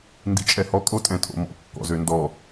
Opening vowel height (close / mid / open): close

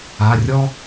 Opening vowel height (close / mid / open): open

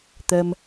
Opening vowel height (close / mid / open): mid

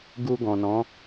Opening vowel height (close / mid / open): close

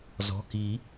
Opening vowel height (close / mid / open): mid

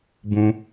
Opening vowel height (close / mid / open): close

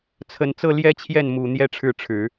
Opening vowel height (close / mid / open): mid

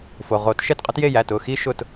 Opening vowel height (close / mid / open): mid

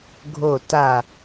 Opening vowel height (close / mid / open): mid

